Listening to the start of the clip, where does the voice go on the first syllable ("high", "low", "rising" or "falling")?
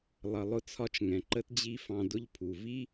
low